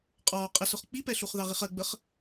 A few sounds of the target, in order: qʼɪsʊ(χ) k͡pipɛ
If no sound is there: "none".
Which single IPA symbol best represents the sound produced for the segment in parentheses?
χ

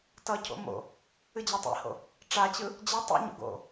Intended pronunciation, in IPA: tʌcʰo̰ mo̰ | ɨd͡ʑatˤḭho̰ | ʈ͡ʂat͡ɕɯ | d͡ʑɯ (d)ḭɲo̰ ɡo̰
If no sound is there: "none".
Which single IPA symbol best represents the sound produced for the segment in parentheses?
tˤ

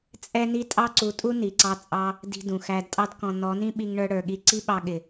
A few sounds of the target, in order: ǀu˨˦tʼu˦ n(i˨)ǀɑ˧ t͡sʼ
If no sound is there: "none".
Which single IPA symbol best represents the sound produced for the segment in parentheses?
i˨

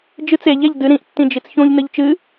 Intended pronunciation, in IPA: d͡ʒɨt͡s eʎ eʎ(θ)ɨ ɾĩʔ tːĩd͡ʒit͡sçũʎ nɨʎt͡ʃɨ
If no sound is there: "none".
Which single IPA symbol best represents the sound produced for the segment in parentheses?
d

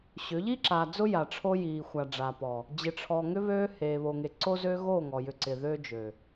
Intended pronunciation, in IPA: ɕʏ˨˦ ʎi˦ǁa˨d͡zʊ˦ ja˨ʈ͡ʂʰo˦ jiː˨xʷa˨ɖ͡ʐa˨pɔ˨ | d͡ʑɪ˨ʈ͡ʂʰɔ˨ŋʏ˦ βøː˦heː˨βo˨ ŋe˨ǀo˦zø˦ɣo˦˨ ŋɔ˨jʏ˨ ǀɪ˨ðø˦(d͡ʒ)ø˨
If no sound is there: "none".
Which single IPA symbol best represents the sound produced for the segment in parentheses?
d͡ʒ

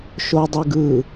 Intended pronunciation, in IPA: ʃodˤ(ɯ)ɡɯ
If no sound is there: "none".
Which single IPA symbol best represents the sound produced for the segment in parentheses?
ɯ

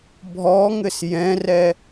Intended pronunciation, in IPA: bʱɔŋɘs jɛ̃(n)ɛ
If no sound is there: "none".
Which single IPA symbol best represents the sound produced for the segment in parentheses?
r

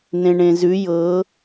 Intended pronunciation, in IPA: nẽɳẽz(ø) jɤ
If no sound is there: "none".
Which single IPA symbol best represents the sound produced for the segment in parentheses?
ʉ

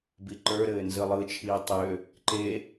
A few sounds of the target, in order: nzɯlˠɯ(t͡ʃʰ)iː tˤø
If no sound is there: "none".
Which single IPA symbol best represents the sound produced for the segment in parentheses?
t͡ʃʰ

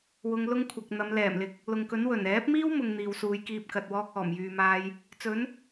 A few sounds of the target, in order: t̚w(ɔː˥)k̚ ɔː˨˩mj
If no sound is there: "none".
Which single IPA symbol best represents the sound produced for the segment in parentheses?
ɔː˥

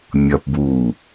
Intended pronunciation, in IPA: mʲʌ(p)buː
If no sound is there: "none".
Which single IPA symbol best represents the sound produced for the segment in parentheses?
p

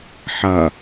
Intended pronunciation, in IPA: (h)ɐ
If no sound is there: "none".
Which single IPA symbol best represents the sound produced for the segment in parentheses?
ħ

